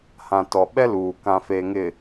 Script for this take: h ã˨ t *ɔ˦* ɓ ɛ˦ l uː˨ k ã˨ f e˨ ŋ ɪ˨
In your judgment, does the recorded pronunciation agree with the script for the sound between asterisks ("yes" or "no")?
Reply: no